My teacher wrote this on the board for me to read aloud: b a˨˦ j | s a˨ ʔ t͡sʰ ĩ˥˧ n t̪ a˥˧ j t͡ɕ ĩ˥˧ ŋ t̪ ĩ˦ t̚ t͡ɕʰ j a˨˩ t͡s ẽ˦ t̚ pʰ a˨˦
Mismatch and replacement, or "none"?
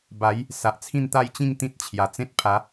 none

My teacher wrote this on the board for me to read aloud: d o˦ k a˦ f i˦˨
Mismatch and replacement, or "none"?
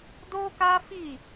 none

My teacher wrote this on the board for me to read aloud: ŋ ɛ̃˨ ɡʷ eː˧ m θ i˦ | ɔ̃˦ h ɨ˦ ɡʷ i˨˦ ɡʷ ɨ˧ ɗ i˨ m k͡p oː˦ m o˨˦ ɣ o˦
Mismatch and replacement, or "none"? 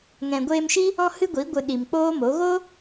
θ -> ʃ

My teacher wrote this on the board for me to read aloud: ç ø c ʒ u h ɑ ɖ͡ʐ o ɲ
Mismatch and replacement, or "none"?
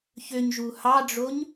c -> ɲ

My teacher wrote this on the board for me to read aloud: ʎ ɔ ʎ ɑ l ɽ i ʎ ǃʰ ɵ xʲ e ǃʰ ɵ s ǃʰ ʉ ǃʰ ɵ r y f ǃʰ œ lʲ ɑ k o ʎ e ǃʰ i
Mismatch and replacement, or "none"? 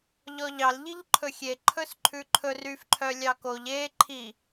ɽ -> ʎ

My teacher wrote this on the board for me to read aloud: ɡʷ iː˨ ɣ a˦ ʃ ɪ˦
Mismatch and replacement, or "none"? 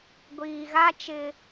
ʃ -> t͡ʃ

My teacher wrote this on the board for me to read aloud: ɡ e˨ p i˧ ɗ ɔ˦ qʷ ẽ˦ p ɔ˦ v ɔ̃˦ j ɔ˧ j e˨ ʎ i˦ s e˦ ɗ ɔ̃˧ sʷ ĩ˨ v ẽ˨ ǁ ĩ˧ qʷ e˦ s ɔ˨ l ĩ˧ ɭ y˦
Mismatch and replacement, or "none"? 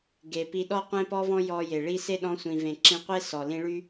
ʎ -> ɭ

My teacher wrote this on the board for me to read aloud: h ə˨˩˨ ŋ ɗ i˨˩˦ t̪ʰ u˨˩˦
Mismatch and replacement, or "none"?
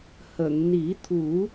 ɗ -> n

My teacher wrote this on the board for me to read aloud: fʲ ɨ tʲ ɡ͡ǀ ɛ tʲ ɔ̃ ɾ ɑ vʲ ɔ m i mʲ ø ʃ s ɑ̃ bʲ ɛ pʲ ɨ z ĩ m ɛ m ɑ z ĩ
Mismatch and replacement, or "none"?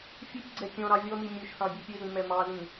none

